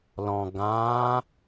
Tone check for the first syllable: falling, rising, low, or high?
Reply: low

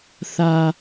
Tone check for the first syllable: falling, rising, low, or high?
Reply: low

